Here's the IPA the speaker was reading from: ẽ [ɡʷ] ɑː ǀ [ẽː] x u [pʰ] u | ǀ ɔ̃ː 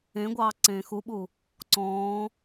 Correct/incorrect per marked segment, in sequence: correct, correct, incorrect

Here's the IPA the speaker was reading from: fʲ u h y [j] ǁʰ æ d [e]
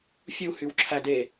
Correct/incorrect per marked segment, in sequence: incorrect, correct

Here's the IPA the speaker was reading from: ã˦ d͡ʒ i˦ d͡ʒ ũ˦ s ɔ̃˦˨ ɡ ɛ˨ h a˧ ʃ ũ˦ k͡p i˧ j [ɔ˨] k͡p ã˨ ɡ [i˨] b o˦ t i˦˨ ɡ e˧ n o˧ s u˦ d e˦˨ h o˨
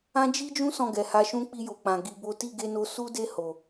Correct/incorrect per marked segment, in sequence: incorrect, incorrect

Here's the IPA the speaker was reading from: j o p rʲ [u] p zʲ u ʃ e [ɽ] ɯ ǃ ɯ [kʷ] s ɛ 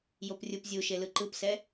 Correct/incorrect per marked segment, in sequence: correct, incorrect, incorrect

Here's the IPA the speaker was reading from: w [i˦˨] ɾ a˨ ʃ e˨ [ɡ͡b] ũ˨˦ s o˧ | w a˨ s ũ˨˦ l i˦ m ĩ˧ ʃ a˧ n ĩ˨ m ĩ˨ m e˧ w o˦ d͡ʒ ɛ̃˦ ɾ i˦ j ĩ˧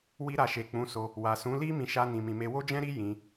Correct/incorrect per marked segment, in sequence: incorrect, incorrect

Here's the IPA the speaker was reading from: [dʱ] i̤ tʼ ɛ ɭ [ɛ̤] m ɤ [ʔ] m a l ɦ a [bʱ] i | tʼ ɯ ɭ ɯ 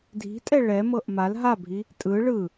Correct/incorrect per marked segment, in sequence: correct, incorrect, correct, correct

